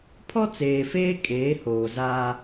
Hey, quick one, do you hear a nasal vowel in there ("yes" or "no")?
no